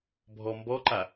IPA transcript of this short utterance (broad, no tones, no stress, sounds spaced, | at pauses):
bʱ ɔ m b ɔ ǃ a